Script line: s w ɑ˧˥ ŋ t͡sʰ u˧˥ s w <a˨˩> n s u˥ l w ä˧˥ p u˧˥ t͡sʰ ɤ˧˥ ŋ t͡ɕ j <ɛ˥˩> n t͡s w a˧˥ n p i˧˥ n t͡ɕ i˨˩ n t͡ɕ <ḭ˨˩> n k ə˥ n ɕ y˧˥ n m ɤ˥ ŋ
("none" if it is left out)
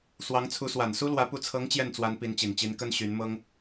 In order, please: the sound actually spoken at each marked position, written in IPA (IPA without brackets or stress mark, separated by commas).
a˨˩, ɛ˥˩, i˧˥